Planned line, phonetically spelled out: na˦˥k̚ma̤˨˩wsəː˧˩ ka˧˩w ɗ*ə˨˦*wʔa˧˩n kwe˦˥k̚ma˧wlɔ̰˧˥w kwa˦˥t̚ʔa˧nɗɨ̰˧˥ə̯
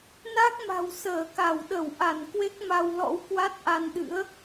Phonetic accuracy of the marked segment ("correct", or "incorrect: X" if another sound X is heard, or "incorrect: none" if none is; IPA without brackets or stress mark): incorrect: ə˧˩